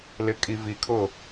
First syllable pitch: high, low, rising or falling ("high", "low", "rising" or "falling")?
low